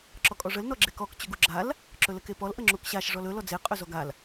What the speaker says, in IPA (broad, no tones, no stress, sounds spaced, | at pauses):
ǁ ɔ kʼ ɔ ʐ ə l n ɔ ɡ͡ǁ e k ɔ k t͡ɕ ɵ ɡ u ɡ͡ǁ a l | ǁ ɵ l ə k e p ɔ l ʔ ə ŋ͡ǁ u k ɕ a ʃ ʐ ɔ l ɵ l ɔ d͡z e qʼ ɵ z ɔ ɡ a l